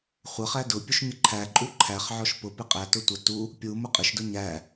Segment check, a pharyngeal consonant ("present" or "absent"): present